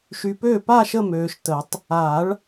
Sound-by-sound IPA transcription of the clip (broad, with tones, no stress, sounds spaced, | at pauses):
ʃ y˨ p øː˥˩ p aː˥˧ ʃ ə˥˧ m øː˨ ʃ t ə˨˩˦ tˤ | a˨˩˦ ɭ